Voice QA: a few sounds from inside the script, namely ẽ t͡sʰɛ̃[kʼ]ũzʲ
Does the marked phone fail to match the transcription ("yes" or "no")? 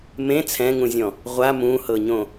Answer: yes